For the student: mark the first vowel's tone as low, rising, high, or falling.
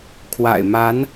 low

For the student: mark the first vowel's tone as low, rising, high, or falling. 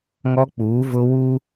high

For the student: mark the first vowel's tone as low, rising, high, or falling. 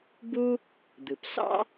high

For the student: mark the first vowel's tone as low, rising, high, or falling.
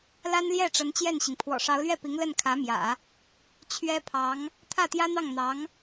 high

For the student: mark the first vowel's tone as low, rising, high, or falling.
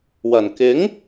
low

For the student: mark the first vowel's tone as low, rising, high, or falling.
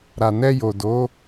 low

